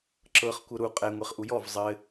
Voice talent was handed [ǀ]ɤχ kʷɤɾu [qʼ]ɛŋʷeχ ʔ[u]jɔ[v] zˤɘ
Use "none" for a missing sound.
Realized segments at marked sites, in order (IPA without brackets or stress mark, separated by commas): ǁ, qʼ, u, v